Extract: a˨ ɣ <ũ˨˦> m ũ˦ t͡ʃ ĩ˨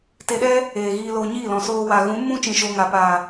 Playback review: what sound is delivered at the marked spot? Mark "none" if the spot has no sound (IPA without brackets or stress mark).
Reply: ũ˨˦